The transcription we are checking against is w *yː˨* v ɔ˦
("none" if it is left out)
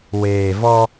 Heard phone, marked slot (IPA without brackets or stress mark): eː˨